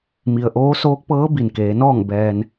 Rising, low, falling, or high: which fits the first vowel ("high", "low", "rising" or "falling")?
low